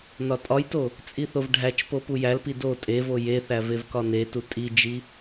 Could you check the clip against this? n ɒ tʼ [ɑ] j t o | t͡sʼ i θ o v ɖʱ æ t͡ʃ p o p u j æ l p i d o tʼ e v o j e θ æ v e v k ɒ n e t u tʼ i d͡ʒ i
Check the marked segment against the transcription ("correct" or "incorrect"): incorrect